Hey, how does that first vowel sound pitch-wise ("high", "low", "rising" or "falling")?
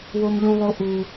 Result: high